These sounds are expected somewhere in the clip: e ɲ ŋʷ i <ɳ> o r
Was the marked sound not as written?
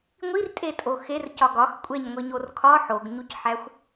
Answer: yes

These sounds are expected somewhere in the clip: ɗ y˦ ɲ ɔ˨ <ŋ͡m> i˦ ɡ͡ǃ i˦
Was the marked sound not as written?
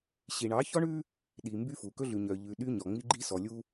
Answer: no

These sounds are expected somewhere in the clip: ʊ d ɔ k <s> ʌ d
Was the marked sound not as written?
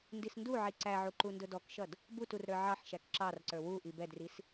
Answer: yes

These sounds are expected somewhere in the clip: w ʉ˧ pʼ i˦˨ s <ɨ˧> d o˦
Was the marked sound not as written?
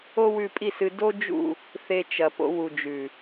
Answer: no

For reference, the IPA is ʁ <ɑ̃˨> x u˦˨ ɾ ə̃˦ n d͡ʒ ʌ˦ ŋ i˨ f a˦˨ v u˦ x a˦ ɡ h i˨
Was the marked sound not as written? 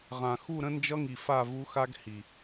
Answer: yes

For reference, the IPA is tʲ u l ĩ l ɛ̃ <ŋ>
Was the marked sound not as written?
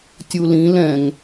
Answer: no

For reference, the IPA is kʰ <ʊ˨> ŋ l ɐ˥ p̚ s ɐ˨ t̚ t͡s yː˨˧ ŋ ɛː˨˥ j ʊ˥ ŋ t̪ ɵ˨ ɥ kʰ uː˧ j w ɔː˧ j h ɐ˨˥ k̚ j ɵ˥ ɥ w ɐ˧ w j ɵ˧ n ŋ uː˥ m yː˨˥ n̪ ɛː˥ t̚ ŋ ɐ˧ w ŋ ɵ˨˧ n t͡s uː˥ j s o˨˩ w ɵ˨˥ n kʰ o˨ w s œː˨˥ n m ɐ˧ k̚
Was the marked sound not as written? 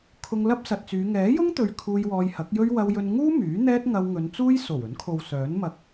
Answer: yes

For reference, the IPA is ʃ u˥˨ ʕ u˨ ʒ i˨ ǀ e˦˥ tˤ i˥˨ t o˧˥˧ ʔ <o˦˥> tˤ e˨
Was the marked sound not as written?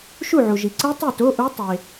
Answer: yes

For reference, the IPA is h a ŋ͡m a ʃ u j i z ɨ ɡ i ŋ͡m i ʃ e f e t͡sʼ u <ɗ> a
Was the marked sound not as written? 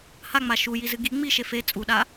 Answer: no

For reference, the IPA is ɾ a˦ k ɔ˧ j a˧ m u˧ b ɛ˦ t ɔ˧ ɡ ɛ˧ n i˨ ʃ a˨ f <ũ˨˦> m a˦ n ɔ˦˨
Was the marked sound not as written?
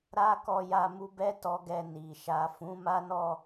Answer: no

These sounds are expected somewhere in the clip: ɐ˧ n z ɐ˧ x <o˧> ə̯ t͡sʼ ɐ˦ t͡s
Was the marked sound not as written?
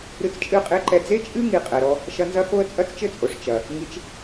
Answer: no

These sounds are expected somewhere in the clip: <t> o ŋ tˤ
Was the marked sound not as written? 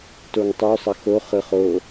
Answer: no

